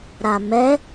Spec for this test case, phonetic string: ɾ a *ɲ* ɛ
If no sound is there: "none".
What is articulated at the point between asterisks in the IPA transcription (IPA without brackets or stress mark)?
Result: m